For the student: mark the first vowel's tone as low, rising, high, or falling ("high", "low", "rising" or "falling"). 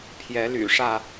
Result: rising